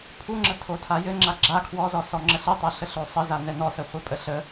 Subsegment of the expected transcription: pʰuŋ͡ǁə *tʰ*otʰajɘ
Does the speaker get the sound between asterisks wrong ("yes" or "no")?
no